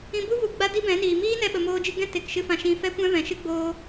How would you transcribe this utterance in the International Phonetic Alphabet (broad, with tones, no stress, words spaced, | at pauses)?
ĩ˦ bu˦vu˨ ɡ͡ba˦di˦bɛ̃˨˦niː˨ miː˦nɛ˧ ɓə˧moː˦d͡ʒɨ˦ ɡɛ̃˦te˨kʃɨ˧ fã˧ʃĩ˧ fɛ˦kʷɛ̃˦vɛ̃˨ʃɨ˦ ɡ͡boː˧